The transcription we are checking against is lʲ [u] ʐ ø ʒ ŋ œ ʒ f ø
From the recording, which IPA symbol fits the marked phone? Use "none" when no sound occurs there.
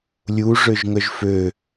u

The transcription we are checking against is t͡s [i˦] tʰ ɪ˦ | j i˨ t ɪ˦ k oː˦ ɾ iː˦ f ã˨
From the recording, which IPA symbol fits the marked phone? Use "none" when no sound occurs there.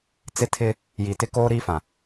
ɪ˦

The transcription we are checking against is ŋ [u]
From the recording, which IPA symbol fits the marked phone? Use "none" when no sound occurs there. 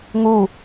u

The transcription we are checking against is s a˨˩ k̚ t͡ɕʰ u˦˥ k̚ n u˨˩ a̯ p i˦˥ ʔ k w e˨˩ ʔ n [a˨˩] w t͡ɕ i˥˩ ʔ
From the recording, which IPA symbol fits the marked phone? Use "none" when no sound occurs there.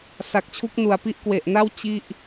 a˥˩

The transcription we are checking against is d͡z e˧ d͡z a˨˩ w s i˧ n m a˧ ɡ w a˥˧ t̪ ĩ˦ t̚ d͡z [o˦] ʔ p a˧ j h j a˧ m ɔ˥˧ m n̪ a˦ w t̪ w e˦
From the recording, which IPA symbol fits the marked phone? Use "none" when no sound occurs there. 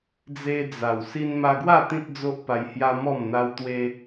o˦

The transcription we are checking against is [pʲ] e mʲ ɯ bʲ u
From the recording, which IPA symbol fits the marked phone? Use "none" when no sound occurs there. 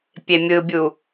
pʲ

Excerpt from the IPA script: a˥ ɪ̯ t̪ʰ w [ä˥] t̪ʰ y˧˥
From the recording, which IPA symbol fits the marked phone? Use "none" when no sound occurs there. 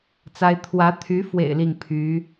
ä˧˥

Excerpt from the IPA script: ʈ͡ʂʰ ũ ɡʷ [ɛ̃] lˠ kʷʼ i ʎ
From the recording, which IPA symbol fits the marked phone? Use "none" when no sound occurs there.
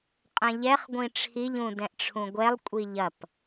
ɛ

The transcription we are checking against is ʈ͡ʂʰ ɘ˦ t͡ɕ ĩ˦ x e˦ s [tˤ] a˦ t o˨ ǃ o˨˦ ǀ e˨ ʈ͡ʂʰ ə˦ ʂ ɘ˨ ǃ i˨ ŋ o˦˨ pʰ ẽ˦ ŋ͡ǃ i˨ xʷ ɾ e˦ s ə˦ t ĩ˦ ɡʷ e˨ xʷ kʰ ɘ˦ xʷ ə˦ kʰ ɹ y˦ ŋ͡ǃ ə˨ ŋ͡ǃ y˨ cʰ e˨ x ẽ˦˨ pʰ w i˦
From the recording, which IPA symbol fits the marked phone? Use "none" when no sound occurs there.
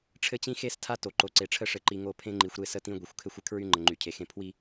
tʰ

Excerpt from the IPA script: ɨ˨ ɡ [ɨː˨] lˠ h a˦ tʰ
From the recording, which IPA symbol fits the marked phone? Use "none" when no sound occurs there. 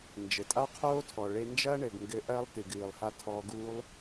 ɨː˨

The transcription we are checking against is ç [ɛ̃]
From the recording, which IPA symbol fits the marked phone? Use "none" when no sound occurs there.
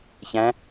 æ̃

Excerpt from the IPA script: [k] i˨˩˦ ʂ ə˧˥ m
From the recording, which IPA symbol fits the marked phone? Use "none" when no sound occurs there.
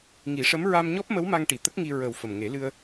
ŋ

